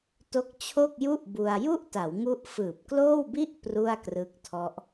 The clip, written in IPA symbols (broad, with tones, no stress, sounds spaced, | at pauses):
t o˦˥ k̚ t͡ɕʰ o˥˩ k̚ j u˥˩ ʔ b u˧ a̯ j u˥˩ ʔ t a˩˦ w ŋ u˦˥ ʔ f ɯː˨˩ p̚ k l oː˥˩ w b i˥˩ ʔ p r u˥˩ a̯ k r ɯ˦˥ k̚ tʰ ɔ˦˥ ʔ